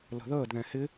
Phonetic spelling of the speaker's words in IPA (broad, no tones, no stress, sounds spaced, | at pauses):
l ə̤ ð əː d ð ɛ̃ h ɪ